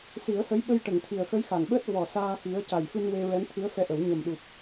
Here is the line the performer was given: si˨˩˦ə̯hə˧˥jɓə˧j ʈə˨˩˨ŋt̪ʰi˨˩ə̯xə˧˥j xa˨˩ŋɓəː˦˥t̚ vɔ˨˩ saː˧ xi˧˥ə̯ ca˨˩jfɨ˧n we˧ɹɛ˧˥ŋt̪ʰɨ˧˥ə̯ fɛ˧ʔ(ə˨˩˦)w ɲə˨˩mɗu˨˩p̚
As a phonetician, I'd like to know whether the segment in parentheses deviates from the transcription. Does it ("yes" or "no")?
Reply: no